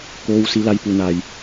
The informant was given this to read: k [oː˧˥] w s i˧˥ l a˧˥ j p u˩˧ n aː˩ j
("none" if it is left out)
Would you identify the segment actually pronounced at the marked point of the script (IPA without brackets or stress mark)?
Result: oː˧˥